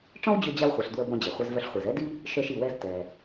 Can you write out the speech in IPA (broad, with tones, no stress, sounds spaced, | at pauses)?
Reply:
ʈ͡ʂ ɔ̃˥ w d͡ʑ ø˧ d͡ʑ a˧ w χʷ e˩ ɬ d w ə˧ b ɔ̃˧ d͡ʑ e˩ χʷ ɛ˧ z v œ˧ ɬ χʷ e˩ z ɛ˥ d i˥ | ʃ œ˧ ʃ i˩ w ɛ˧ z t ɛ˩